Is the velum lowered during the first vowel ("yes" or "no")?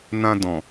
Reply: yes